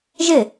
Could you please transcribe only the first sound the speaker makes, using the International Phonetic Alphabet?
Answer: ʒ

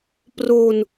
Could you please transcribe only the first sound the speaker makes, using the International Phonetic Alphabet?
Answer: p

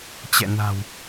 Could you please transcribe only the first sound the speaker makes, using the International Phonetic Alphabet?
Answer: t͡ɕ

